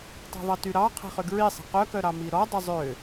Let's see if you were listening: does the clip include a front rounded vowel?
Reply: yes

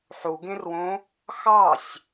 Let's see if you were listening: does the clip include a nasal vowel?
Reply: yes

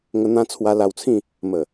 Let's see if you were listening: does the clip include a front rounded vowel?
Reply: no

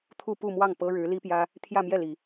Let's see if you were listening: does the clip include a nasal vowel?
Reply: no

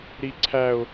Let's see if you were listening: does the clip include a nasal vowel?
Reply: no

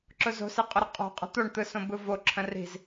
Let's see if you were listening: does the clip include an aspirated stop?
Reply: yes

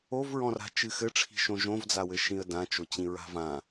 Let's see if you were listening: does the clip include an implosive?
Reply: no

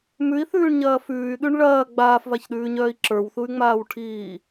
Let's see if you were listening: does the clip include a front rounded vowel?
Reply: yes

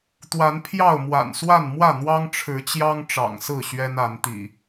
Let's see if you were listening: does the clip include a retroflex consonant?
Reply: yes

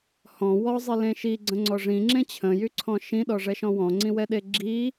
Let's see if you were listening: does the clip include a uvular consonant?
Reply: no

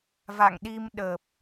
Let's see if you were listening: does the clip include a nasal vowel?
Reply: no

